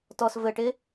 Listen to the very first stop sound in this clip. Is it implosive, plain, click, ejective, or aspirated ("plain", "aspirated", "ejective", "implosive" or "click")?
plain